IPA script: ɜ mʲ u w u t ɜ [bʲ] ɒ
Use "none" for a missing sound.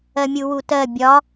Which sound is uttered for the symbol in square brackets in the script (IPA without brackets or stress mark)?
bʲ